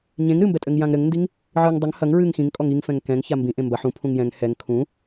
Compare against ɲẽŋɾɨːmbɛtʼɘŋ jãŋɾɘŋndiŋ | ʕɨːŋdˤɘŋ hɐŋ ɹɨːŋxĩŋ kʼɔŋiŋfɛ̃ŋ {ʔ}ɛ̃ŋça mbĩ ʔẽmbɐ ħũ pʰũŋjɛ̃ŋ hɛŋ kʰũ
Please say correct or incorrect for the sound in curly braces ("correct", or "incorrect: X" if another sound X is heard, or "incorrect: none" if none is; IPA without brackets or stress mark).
incorrect: k